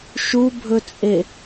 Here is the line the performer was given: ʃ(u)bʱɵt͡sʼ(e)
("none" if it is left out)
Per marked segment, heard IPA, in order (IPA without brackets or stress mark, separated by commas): u, e